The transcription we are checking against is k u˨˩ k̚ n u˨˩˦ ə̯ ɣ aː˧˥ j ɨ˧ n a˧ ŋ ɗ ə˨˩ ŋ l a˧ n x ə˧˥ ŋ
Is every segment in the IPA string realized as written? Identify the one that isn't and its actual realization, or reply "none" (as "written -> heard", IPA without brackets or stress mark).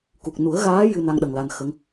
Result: none